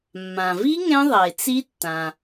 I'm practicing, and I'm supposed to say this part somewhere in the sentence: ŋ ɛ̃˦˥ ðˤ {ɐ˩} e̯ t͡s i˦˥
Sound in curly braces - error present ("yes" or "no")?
no